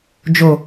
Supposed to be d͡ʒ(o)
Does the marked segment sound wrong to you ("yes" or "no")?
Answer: no